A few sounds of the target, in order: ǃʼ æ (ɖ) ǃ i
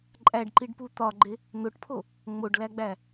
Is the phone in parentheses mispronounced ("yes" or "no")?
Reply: no